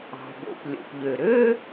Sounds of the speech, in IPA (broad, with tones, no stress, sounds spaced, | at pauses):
ɑ̤˩ b o̰˩ p lʲ o̰˩ p ʎ ø˩ ɾ ø˥